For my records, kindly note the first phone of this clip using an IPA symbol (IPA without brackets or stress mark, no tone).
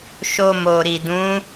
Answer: ʃ